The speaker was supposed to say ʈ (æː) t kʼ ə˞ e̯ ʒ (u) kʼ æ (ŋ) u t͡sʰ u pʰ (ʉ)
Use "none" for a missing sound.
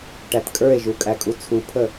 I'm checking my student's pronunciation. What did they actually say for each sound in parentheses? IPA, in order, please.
æ, u, kʼ, ə

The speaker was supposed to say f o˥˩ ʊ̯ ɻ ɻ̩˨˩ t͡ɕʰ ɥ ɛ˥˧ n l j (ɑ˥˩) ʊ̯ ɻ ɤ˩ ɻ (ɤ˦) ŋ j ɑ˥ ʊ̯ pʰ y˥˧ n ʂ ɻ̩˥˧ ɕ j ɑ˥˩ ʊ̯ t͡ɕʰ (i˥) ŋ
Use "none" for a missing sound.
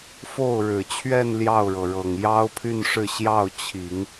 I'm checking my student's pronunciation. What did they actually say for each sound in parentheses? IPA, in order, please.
ɑ˥˩, ɤ˨˩, i˨˩˦

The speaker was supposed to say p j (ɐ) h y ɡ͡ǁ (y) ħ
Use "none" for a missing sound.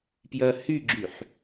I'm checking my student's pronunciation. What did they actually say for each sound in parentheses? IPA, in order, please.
ɐ, y

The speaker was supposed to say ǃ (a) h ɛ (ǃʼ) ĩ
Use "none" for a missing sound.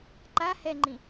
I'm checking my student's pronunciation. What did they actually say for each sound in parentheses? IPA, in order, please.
a, ŋ͡ǃ

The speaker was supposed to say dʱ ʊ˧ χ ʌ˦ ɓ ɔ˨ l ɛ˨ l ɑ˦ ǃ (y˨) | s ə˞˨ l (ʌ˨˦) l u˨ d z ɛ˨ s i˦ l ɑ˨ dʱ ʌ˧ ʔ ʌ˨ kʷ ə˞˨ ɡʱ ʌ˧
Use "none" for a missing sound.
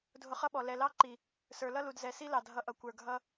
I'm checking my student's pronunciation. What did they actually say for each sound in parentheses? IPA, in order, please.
i˨, ʌ˦

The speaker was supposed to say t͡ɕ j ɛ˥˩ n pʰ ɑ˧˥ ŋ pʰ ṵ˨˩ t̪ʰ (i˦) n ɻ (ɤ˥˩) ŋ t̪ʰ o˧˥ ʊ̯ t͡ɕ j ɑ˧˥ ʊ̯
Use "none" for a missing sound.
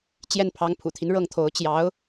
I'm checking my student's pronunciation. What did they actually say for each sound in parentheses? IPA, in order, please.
i˦, ɤ˥˩

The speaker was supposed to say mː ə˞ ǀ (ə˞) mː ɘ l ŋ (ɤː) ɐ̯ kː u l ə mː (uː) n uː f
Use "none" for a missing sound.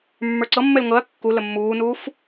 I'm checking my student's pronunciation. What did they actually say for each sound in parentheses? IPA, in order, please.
ɤ, ɤ, uː

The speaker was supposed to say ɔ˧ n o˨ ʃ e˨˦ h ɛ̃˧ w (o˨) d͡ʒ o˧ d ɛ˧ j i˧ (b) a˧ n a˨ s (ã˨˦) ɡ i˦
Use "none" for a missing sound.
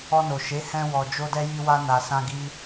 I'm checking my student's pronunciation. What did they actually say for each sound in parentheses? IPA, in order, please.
ɔ˨, w, ã˧

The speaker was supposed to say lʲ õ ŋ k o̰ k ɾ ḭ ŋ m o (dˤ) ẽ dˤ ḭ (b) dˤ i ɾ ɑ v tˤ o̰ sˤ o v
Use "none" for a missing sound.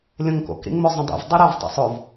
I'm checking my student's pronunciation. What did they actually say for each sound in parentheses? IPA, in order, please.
zˤ, v

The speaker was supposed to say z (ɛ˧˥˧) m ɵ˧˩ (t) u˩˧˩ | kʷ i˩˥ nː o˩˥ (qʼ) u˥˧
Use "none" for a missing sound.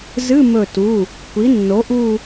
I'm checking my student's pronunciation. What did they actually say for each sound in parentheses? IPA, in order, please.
ɨ˧˥˧, t, ʔ

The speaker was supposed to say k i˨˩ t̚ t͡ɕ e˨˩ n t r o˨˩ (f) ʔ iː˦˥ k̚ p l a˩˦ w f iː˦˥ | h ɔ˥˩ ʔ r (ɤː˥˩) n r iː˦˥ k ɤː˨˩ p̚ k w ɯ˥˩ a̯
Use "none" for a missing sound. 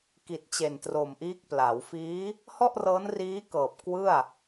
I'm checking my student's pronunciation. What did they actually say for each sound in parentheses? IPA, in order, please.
m, ɤː˦˥

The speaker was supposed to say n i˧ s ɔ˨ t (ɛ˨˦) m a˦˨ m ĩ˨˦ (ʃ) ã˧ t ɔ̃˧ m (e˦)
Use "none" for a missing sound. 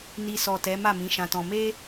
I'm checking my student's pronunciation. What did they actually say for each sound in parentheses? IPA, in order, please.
ɛ˨˦, ʃ, e˦

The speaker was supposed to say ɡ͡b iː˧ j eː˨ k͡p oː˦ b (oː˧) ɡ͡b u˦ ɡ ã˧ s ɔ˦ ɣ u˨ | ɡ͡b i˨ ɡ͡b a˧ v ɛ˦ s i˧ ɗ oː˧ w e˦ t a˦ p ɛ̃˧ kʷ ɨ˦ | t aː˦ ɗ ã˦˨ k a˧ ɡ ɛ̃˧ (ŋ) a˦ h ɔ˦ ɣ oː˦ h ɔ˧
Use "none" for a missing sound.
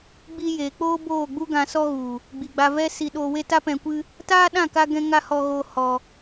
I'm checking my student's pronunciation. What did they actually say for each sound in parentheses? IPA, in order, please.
oː˦˨, ŋ

